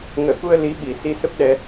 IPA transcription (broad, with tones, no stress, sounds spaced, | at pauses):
ŋ əː˧˩ k u˧ ə̯ l i˨˦ ɓ i˨˩ s i˧ s ə˦˥ p̚ ɗ ɛ˧